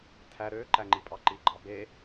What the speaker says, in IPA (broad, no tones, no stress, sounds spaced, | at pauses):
tʰ æ ɾ ø ǃ æ ŋ͡ǃ i pʼ ɑ ǃ i ɡ͡ǃ ɑ b e